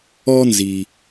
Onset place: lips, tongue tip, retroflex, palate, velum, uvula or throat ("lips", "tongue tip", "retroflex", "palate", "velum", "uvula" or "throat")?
tongue tip